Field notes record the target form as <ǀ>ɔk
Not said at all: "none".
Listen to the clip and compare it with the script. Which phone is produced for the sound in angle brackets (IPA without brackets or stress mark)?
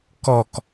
k